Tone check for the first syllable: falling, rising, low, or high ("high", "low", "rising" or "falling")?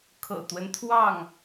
low